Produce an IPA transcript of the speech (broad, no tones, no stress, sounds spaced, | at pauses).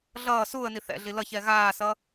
ɮ ʌː s uː ə̯ n i θ ɛ̰ ɮ i l ʌ ç ɛ ɣ aː s ʌ